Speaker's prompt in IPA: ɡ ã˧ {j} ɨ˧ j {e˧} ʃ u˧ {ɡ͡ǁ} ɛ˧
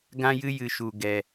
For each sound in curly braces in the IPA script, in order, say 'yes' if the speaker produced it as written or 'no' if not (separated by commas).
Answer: yes, no, no